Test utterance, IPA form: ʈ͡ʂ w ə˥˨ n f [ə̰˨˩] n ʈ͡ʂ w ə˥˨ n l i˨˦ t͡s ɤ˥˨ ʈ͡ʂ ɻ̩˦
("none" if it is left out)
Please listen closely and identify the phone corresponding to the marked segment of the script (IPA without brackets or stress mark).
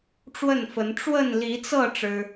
ə˨˦